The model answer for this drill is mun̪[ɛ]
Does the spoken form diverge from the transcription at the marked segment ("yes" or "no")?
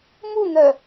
yes